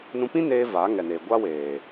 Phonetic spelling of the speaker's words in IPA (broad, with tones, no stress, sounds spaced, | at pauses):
n ũ˧ p ĩ˦ n eː˧ v aː˨˦ ŋ ɛ˨ n eː˨ ɡʷ a˦ w eː˨